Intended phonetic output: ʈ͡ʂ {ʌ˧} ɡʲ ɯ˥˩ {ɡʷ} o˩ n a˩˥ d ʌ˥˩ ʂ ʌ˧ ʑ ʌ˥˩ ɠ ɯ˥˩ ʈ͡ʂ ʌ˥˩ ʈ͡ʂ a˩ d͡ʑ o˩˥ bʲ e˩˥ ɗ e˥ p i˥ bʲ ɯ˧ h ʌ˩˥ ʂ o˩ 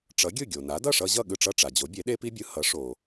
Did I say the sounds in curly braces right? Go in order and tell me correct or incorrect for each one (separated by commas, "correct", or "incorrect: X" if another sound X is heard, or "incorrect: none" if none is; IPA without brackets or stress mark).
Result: incorrect: ʌ˩˥, incorrect: ɡʲ